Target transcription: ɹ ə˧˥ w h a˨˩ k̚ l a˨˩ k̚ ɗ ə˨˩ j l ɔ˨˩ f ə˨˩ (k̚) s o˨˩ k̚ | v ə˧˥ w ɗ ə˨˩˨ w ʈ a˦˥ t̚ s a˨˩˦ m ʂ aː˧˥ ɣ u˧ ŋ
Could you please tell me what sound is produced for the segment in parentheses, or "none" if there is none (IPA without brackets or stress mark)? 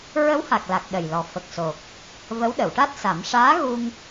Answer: k̚